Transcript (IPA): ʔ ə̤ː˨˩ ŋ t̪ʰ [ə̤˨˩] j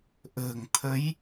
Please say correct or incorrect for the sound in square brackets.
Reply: incorrect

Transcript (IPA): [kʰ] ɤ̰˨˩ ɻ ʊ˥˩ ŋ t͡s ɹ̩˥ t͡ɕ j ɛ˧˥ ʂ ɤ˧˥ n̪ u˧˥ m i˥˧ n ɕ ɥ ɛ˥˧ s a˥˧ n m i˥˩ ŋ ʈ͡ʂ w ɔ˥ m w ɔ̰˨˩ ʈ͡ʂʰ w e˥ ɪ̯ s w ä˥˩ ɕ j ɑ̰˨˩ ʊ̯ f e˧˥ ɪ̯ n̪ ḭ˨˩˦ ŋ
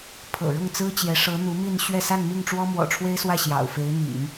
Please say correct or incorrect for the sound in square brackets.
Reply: incorrect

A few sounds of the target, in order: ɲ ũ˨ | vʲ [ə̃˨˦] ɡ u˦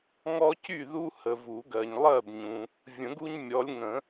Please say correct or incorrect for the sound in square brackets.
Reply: incorrect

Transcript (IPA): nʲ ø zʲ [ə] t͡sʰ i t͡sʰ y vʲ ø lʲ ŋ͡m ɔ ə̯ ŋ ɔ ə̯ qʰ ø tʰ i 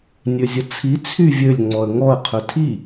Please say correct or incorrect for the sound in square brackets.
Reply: correct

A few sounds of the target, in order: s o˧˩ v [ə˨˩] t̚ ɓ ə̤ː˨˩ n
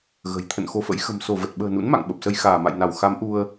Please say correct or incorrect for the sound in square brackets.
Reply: correct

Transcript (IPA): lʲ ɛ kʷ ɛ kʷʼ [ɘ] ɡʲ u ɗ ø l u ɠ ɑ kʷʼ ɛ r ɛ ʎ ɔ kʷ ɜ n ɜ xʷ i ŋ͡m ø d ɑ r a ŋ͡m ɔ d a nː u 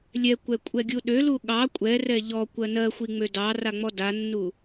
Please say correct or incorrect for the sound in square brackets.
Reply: incorrect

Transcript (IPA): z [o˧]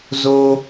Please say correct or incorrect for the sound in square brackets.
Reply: correct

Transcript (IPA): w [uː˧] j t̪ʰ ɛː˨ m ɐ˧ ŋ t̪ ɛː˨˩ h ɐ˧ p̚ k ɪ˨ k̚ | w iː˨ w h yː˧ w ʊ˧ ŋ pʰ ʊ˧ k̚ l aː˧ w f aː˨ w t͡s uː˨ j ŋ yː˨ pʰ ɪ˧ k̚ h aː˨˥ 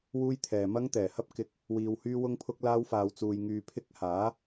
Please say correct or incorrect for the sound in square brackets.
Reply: correct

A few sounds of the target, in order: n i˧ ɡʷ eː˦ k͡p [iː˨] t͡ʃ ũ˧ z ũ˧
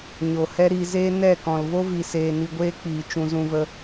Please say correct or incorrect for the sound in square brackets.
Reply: correct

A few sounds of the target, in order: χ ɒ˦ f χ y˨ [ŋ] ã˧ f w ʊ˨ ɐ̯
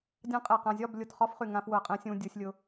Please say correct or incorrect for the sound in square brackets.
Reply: correct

